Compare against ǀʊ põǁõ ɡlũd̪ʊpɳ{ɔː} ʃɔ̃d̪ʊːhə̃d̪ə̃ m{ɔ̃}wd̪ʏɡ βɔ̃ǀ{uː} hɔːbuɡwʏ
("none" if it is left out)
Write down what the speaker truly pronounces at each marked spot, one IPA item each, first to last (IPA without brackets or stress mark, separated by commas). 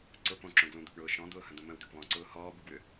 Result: ʊː, ə̃, ʊː